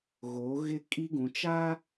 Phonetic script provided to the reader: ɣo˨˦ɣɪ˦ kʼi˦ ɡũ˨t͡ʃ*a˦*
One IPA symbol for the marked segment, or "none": a˦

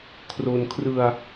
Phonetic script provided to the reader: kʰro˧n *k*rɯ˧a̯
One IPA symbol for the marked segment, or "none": kʰ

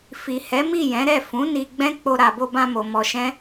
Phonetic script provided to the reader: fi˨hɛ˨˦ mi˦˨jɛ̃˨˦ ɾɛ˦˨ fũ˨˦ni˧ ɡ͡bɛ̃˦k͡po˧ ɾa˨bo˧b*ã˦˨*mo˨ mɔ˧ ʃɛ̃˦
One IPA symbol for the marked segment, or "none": ã˧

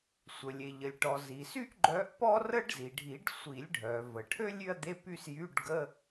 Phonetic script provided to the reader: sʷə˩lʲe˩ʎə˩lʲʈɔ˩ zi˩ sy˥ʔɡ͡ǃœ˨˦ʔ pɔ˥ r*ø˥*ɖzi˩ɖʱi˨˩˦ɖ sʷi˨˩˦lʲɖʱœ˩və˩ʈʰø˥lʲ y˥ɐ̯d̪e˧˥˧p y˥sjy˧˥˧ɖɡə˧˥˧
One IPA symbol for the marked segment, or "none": ə˥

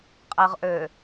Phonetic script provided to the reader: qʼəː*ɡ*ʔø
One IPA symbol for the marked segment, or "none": ʁ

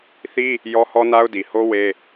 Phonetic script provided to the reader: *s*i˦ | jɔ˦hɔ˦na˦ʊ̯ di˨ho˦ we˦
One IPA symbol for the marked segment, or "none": θ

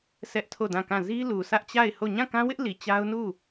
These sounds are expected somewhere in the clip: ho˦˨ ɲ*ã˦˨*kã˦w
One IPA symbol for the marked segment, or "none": ã˦˨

